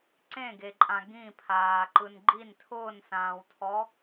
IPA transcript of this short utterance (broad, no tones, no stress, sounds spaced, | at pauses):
ǀ ẽ ɡ e ǃʼ ã ɡ ĩ pʰ aː ǃ ɯ n ɡ͡ǃ i n tʰ ʊː n s ãː w tʰ ɔ